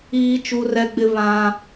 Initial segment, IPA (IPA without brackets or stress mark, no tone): iː